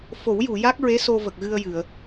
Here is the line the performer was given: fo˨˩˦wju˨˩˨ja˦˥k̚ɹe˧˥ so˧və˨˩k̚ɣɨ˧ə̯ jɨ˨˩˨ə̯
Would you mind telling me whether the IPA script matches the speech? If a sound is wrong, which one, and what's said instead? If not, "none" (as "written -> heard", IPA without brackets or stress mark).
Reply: none